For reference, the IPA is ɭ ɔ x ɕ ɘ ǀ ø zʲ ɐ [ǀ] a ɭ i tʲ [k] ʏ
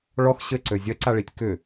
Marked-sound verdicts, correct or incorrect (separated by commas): correct, correct